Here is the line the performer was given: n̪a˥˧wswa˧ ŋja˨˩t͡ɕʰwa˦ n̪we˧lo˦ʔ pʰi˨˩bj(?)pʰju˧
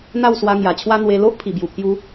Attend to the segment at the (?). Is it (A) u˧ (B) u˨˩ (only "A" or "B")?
B